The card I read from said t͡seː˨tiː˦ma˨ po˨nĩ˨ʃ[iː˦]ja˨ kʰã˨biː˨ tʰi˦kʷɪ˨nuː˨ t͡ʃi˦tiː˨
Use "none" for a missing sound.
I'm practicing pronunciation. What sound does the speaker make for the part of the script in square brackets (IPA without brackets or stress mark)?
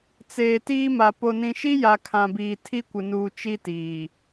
i˦